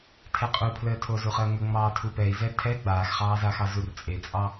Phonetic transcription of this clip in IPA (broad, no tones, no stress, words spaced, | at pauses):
tʰɛqʼupʰləːtʰo zuχəːŋə ŋ͡mɑːtʰupɛi̯ zɛtʰɛ ɡ͡baːxχɑːzaxɑ zurt͡sʼet͡sʼɑ